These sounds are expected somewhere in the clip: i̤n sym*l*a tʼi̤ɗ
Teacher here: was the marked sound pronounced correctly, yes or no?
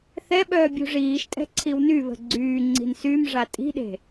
no